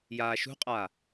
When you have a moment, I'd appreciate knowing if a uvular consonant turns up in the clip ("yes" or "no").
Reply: yes